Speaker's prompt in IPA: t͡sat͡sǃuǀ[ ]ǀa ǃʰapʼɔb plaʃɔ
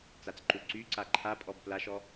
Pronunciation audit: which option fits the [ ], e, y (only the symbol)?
y